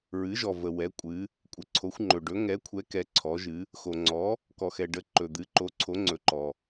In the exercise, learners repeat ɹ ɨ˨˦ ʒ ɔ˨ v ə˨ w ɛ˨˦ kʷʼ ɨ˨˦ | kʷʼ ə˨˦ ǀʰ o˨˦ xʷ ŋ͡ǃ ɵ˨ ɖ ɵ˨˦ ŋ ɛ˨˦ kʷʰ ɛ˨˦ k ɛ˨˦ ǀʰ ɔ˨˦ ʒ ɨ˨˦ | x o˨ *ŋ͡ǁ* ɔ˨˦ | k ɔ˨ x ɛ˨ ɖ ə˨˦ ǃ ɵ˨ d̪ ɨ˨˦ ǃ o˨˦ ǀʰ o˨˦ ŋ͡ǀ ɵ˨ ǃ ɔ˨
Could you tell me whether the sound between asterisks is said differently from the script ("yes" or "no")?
yes